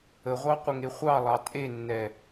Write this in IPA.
əʁʷɑqʷəŋe χʷɑlˠɑ tʼenːɛ

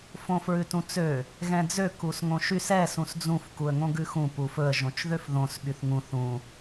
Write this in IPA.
fõfɹʉtũt͡sø | ɣɛ̃d͡zø kusŋõʃys ɛ sũsd͡zũf kuə̯ŋõɡʉxũ pufɵə̯ ʒõt͡ʃðøfðõs ɓyθŋũ θũ

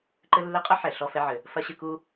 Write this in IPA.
ǃɘ˦lːɘ˦qʼɐ˥ ħɛ˩ ɬɔ˦fɛ˦ʕɘ˩ | fɐ˥ɕɨ˦ku˥

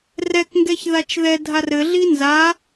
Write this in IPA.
rɛkŋɡɛç ðat͡ʃðɛdʱar ɘɮi nza

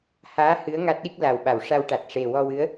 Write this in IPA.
haː˧˥ hɨ˧˥ə̯ ŋa˦˥t̚ɗi˦˥k̚ la˨˩wɓa˨˩˨wʂa˧wʈa˨˩t̚ ʂe˨˩wɔ˧wɨ˧˥ə̯

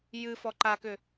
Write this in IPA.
jɨfɔ ǃakʏ

